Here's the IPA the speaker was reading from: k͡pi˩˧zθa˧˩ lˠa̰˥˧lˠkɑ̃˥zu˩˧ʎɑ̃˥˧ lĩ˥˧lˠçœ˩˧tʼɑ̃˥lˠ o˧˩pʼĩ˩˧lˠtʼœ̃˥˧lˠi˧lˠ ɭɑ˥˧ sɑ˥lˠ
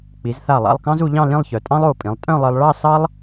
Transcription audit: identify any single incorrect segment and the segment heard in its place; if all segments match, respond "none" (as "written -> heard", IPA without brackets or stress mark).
none